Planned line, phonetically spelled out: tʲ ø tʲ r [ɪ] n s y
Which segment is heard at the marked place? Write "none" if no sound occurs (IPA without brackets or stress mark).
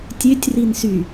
i